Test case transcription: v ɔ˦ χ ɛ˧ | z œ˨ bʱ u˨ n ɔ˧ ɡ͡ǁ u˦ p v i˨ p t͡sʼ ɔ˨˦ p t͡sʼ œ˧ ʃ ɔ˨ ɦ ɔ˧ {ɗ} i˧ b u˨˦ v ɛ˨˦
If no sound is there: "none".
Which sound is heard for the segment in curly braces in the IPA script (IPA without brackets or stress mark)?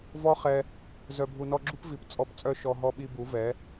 ɓ